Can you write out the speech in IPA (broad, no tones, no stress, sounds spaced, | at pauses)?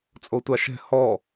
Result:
t͡sʼ o tʷ a ʃ ɛ̤ h ɔ